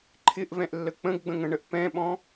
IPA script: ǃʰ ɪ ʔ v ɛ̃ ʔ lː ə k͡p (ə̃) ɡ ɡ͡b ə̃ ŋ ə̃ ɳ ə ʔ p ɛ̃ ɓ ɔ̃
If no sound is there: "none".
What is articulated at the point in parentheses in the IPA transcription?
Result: ə̃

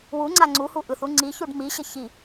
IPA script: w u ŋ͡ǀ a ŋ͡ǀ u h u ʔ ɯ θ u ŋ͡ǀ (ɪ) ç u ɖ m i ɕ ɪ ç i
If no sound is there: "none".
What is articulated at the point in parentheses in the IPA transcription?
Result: i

